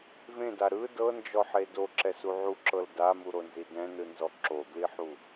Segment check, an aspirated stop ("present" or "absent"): absent